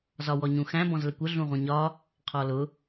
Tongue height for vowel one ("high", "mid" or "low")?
low